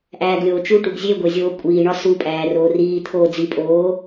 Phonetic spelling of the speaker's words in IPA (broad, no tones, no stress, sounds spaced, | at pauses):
ʔ æː ɡ lʲ oː t͡ʃ u ʈ u ɡ zʲ e ɡʷ e zʲ oː kʷʼ iː ɳ ɒ s u pʼ æː r oː r iː t̪ʰ oː d͡z i pʼ oː